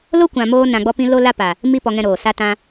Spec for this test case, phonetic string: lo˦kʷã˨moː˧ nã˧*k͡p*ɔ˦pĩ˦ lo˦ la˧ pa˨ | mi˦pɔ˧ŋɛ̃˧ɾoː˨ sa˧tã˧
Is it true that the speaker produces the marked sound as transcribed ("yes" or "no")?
no